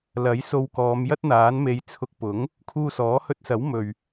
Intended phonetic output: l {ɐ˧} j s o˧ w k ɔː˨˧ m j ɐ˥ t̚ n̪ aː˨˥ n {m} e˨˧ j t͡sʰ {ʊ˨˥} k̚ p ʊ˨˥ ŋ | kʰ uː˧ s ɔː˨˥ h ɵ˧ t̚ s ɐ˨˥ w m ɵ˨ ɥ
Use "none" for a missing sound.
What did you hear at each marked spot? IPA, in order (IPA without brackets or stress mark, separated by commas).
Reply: ɐ˨˥, m, ʊ˧